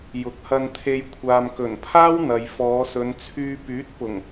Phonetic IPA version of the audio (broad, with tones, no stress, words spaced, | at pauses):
jʊ˨˥k̚hɐ˧nt̪ʰe˧j kʷʰaː˨mkɵ˨˩npʰaː˥w n̪ɐ˨jfɔː˨˧sɵ˨˧nt͡sʰyː˧ pyː˨˥t̚pʊ˨˩ŋ